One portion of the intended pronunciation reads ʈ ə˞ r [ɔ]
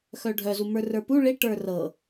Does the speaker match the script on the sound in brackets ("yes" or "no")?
no